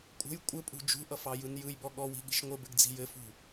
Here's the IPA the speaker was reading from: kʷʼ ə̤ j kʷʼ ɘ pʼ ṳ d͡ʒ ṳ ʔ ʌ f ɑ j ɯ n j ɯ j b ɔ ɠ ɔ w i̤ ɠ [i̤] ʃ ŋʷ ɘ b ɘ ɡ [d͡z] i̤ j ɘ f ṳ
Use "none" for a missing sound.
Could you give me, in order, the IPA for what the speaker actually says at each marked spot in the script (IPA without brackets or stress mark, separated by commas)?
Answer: i̤, d͡z